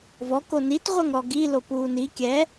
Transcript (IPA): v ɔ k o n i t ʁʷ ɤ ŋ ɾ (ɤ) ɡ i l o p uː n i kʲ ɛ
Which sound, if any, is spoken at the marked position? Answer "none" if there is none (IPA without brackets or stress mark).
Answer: ɔ